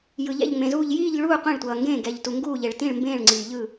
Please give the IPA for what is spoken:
j ɯ˩ ʎ ɛ̰˥˨ ʎ ŋ͡m ẽ˩ z uː˥˨ ʎ j iː˥˨ ʎ ɭ uː˥˨ qʷ ẽ˥˨ ɭ tʷ ʌː˩ ŋ ɡ ẽː˥˨ ɡ ɛ˩ ʎ t u˩ ŋ ɡ uː˥˨ ʎ e˩ ɭ t ĩ˥˨ ɭ m b ẽː˥˨ ɭ ŋ͡ǀ iː˩ ʎ ɯ˥˨

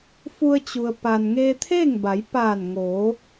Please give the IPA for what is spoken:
f u˧ ə̯ t͡ɕ u˩ ə̯ p a˩ n ŋ eː˧ t̪ʰ eː˥˨ ŋ b a˩˧ j p aː˧˩ n ŋ oː˩˧

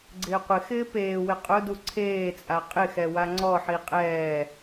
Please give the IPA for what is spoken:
ɡ͡ǀ ɪː qʷ ɪ x ɪː p eː w ɪ qʼ ʊ d u ǀʰ eː t͡sʼ a qʼ ɪ x ɛ w a ŋ͡ǀ ɔ ħ i qʼ ɛː

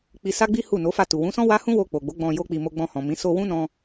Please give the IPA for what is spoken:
k͡p i˧ s a˦ ɡ͡b i˦ h u˦˨ n o˨˦ f a˦˨ t u˨ w ũ˨˦ s ɔ̃˦ w a˦ h ũ˦ w o˧ k͡p o˨ ɡ͡b o˨˦ ɡ͡b ɔ̃˧ j o˦ k͡p i˧ m o˧ ɡ͡b ɔ̃˧ h ɔ̃˨ m ĩ˨˦ s o˧ w ũ˦ n ɔ̃˧

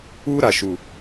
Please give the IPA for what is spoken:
uː˦ ɾ a˨ ʃ u˨

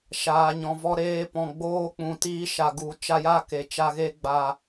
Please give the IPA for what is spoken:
ʃ aː˨ ɲ ɔ̃˨ v ɔ˧ ɾ eː˧ p ɔ̃˨ ɡ͡b oː˧ k͡p ũ˨ t iː˧ ʃ a˨ ɡ u˨˦ t͡ʃ a˧ j a˦˨ k e˨ t͡ʃ a˧ ɣ e˧ ɡ͡b a˨

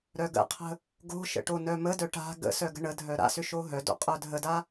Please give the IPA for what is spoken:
ɾ œ ɡ ə̰ qʰ ə̤ | ɡ o̤ ʃ ə̰ ʈ o n œ m ə d œ ʈ a̤ ɡ ə̰ s œ ɡ ə̤ ɳ ə dʱ œ ɾ a̰ s ʏ ʃ o ɦ œ d o̰ qʼ œ dʱ ə d a

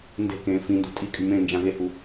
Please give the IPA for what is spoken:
n d e̤ k ẽː f ĩ n d ṳ tʼ i kʼ y m ẽ n d͡ʒ ã ɣ e h u

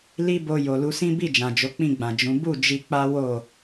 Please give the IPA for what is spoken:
l i˦ b o˧ j o˨ l u˧ s ĩ˦ b i˦˨ d͡ʒ ã˨ d͡ʒ o˨˦ k͡p ĩ˦˨ ɡ͡b ã˨ d͡ʒ ũ˨˦ b u˦˨ d͡ʒ i˧ k͡p a˦ w o˦˨

